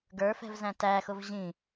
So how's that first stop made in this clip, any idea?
plain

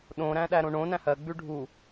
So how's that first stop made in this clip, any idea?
implosive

